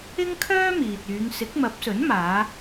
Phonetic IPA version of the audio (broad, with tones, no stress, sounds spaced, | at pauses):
ɪ˥ ŋ kʰ œː˥ m iː˨ t̚ yː˨˧ ŋ s ɪ˨˥ k̚ m ɐ˨˥ p̚ s ɵ˨˥ n m aː˨˧